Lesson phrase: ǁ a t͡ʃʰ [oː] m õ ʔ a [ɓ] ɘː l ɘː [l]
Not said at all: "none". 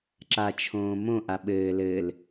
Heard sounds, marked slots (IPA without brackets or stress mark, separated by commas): õː, ɓ, l